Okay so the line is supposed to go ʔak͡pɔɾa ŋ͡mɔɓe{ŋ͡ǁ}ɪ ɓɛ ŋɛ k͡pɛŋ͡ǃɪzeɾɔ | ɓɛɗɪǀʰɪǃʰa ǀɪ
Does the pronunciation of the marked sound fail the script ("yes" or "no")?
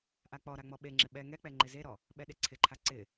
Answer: no